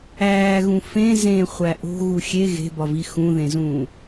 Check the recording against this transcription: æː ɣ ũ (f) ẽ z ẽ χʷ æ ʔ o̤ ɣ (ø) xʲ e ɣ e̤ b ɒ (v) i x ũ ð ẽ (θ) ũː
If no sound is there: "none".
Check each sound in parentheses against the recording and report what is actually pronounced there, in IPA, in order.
f, u, v, z

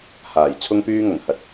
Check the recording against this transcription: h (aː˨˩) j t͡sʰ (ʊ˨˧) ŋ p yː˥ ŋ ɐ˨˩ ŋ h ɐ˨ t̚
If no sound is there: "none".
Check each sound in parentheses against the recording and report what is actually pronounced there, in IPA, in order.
aː˨˩, ʊ˥

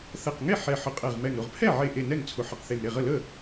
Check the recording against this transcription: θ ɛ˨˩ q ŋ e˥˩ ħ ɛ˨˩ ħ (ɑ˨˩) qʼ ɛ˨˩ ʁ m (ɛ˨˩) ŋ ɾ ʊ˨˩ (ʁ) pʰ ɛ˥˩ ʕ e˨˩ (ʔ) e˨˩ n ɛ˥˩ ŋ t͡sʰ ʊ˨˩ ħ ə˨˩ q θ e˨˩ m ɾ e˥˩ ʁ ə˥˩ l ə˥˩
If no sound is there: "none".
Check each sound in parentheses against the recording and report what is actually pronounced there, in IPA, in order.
ə˨˩, ɛ˨˩, ʁ, ʔ

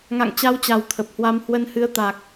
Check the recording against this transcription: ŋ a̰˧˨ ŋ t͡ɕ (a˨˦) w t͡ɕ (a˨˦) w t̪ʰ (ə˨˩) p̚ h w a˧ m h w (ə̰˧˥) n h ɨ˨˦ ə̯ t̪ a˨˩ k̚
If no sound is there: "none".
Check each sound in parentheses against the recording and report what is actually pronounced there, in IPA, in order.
a˨˦, a˨˩, ə˨˩, ə˨˦

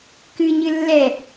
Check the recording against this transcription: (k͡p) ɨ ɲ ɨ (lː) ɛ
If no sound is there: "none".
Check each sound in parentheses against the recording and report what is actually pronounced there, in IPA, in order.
k, lː

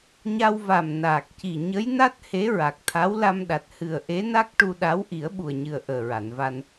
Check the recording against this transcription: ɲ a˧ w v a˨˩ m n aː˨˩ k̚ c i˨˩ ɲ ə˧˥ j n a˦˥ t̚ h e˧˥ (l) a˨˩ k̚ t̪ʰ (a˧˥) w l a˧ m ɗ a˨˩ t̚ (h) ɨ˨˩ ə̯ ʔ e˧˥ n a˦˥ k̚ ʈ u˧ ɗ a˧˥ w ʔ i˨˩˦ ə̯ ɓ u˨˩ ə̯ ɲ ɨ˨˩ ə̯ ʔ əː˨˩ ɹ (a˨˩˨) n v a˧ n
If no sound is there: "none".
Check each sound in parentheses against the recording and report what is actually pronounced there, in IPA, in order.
ɹ, a˧˥, h, a˨˩˨

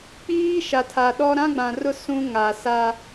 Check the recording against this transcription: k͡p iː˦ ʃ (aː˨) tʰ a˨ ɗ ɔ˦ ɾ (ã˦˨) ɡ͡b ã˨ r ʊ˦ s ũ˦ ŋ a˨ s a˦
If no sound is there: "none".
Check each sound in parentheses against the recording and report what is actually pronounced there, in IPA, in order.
a˨, ã˦

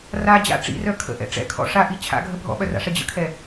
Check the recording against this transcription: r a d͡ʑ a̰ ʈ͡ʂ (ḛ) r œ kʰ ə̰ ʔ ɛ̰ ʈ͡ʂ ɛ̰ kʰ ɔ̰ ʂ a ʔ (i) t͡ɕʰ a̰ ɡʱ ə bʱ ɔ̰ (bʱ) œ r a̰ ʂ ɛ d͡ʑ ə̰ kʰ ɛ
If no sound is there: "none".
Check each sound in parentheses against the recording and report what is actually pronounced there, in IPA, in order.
ḭ, i, ɓ

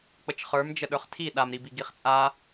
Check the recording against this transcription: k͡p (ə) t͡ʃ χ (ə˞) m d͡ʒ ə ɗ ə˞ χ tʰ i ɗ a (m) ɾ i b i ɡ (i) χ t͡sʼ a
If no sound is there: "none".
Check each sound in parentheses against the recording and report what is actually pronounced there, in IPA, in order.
ə, ə˞, m, i

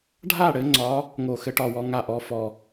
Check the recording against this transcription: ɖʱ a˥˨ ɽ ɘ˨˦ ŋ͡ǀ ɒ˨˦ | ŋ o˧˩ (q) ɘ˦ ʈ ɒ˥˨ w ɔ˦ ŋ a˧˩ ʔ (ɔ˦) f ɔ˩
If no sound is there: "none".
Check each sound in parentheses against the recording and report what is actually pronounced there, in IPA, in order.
x, ɔ˨˦

